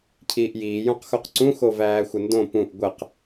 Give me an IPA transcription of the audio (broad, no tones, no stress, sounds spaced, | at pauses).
cʰ iː ʔ j iː j õ q x o q ǀ ũ x o v æː xʷ ə n d õ p ũ ʔ ɡʷ ə q